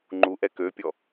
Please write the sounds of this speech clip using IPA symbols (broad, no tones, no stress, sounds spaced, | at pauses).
ŋ͡ǃ u ʔ ɛ k ø pʲ ɔ